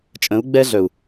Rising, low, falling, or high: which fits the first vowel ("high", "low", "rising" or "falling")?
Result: rising